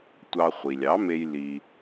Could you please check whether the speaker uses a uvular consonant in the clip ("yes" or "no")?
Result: yes